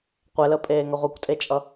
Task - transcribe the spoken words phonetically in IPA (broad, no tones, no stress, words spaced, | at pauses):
qʷeləpʼeːŋʌ ʁʷikʷtʼet͡ʃʼʌ